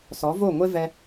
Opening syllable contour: rising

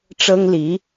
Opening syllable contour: high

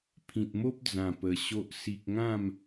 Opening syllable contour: low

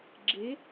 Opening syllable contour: rising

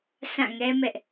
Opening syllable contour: falling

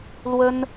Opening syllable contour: high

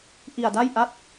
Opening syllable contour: low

